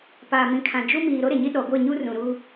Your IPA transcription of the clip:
p a˨ m ĩ˨ kʰ ã˨ d͡ʒ u˦ m iː˨ ɾ o˦ ɾ e˨ ɲ i˦ ɗ ɔ˨ ɡʷ e˦˨ ɲ u˦ r ũ˨ ɾ u˦

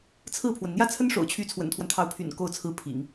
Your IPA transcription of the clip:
t͡sʰ ɹ̩˥˩ pʰ w ə˩ n n̪ j ä˥˩ t͡sʰ ə˥ n ʂ o̰˨˩ ʊ̯ t͡ɕʰ y˧˥ t͡sʰ w ə̰˨˩ n t̪ʰ w a˦ n t̪ʰ ɑ˧˥ ʊ̯ pʰ y̰˨˩ n k o˥˩ ʊ̯ t͡sʰ ɹ̩˥ pʰ ḭ˨˩˦ ŋ

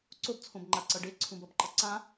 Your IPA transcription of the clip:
ǀ o b t͡sʰ õ b ŋ͡ǃ a ǀ ʌ ɖ e ǀʰ ũ b ʌ b ǃ ʌ ǀ ã

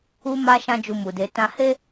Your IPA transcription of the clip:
u˦ m a˦ ʃ ã˦ d͡ʒ u˧ m u˨ d e˨˦ t ã˧ h e˦

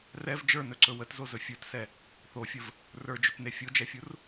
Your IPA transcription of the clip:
r ɛ v d͡ʒ ə˞ n ɵ ǀ ɵ w ə t z o z ɵ fʲ ə˞ t s ɛ | θ o fʲ ə v | r ə˞ d͡ʒ ɵ t n e fʲ o d͡ʒ ɛ fʲ u r

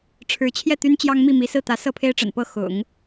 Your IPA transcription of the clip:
ʈ͡ʂʰ ɻ̩˧˥ t͡ɕʰ j ɛ˥˩ t̪ y˥ n t͡ɕ j ɑ˥ ŋ m i˥˩ m i˧˥ s ɹ̩˥˩ t̪ ä˧˥ s ɤ˥˩ pʰ e˥ ɪ̯ ʈ͡ʂ ə̰˨˩ n p ɤ˥˩ x ʊ̰˨˩˦ ŋ

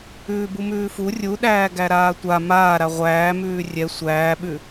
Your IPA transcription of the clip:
ʉː b u m ʉː f u rʲ u ɗ æː ɡ æ ɾ aː tʷ a m aː ɾ a ʁʷ æː m ʉː rʲ ɛ sʷ æː ɓ ʉ

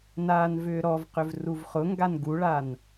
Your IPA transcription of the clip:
n aː n v ʏː ɾ ɔ v q ʏ v r u v χ ʊ ŋ ɡ a n ɡ u ɭ a n

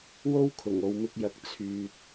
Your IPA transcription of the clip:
w o˥ w kʰ ʊ˨˩ ŋ o˨ w m ɪ˧ k̚ j ɐ˨˥ k̚ t͡sʰ yː˨ t̚

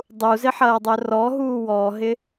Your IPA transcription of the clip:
dˤ u z ɪ ħ ɐː dˤ œ r ɔ ɦ uː w ɔ ɦ ɪ

